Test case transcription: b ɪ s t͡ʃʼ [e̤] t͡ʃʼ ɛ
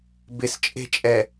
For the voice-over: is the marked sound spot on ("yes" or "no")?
yes